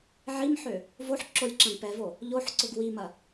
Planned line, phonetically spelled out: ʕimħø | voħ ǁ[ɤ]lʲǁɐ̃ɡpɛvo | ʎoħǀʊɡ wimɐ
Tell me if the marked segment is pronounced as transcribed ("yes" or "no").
no